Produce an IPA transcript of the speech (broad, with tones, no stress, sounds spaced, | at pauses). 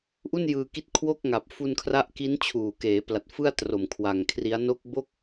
ʔ u˥˩ n j ɯː˧ k i˦˥ t̚ kʰ w o˥˩ k̚ ŋ a˨˩ p̚ f u˧ n kʰ r a˦˥ ʔ k i˦˥ n t͡ɕʰ uː˨˩ k eː˩˦ p l a˨˩ t̚ f ɯ˥˩ a̯ t r o˨˩ m kʰ w a˨˩ ŋ kʰ r i˦˥ a̯ n o˦˥ k̚ b o˥˩ k̚